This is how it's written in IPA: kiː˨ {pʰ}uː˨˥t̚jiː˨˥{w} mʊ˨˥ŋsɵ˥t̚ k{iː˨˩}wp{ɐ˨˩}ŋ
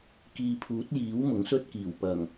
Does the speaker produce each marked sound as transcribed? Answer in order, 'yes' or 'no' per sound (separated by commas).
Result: yes, yes, yes, yes